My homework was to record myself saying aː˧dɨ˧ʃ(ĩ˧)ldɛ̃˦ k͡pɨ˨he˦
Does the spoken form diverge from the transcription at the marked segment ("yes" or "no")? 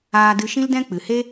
yes